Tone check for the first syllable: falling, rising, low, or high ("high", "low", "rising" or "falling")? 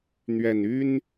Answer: low